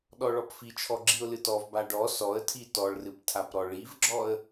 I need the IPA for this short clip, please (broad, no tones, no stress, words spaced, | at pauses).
ɗɔɭɔpfit͡ʃʰɔ ɡ͡ǁiʊ̯lɨtɔvba ɖɔ sɔə̯tʰi tɔɭrɨp tʰapɾɔɭivɡ͡ǁɔə̯